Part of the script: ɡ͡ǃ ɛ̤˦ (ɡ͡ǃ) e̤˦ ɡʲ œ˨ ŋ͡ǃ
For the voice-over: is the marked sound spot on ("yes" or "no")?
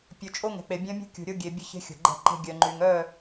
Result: no